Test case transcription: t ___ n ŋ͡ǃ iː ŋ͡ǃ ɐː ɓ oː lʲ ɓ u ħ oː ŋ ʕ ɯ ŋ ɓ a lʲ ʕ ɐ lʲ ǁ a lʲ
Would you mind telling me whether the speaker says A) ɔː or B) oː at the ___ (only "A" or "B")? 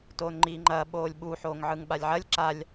B